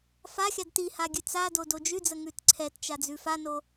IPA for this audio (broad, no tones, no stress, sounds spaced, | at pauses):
f a xʲ a d t i h a ɡʲ ʉ t͡s a d o d o d͡ʒ ʉ d͡z ə ŋ ʉ t ǀʰ ɛ t t͡ʃ a d͡z ʉ f a n o